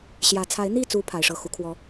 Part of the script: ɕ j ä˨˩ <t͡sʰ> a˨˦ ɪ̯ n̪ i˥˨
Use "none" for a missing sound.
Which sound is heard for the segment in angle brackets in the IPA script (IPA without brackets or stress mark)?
t͡sʰ